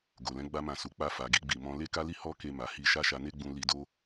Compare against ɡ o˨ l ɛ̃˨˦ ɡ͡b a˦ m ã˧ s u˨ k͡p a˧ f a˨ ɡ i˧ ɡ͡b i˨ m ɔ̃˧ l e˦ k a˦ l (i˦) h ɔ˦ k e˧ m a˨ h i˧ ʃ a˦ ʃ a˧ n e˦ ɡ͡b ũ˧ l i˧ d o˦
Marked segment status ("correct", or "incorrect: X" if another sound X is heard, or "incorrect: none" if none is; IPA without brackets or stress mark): correct